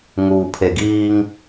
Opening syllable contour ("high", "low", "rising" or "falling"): low